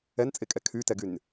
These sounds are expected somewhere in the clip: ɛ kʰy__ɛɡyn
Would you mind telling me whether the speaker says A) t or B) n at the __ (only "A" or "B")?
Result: A